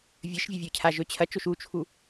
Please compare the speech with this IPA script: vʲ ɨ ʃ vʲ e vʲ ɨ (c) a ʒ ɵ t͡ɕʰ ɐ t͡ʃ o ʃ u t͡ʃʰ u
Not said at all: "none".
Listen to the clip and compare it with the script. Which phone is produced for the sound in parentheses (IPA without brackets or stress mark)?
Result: cʰ